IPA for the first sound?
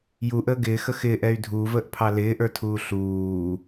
j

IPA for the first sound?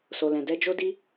s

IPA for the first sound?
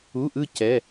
u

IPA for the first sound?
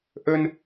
ʔ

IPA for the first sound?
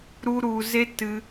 ɾ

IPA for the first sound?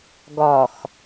ɡ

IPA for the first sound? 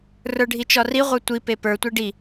r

